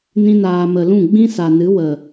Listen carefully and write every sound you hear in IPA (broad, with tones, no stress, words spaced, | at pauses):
nĩ˧naː˨mə˨lũ˦˨ ɡ͡bĩ˦sa˨nɨ˨˦ wə˨